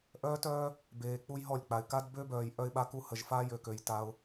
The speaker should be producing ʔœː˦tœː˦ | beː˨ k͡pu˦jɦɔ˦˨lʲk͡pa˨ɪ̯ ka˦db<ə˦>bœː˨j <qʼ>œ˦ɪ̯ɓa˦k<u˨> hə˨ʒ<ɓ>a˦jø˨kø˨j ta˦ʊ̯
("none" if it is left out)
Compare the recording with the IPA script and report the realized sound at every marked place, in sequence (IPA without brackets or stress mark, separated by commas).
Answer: ø˦, ʔ, u˦, f